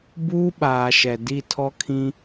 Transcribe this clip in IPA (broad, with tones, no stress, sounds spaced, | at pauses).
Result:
b uː˦ ɓ aː˨ ʃ ɛ˨ d i˦˨ tʰ ɔ˦ kʰ ĩ˦